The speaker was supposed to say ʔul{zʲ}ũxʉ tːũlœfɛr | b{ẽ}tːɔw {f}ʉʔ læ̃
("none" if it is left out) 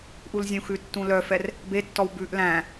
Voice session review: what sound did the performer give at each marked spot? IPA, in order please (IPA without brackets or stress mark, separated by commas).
zʲ, e, b